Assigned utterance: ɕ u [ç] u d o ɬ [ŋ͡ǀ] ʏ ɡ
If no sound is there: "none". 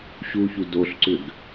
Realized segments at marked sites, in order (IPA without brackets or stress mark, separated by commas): ç, ǀ